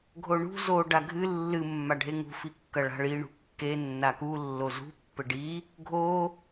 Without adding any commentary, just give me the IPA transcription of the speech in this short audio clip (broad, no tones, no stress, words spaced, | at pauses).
ɡʱoɳṳ zo ɖaɡʱɨ lːɨ mːaɖʱeŋṳ fikːɐɭa̤ɭi ɳṳkːe nːaku lːozṳ pːɘɖi | ɡʱo